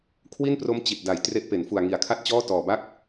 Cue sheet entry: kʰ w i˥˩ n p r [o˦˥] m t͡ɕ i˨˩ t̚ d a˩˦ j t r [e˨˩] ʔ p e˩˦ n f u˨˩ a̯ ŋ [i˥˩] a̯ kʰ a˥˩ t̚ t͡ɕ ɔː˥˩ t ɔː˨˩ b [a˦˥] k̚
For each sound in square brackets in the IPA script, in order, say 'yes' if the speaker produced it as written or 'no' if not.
yes, no, no, no

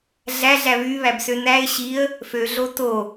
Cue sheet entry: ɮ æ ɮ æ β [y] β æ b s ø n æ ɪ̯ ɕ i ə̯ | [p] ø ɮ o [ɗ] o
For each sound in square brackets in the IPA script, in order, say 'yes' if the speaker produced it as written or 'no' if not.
yes, no, no

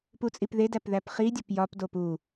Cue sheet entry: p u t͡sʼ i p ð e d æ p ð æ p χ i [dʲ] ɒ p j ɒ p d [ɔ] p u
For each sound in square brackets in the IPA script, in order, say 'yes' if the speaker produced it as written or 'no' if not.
yes, no

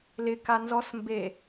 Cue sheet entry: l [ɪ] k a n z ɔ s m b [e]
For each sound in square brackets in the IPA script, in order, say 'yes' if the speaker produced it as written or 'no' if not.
yes, yes

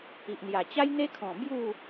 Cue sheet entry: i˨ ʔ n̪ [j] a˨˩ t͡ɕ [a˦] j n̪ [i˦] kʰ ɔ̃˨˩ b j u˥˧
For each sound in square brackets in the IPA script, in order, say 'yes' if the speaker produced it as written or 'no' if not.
yes, yes, no

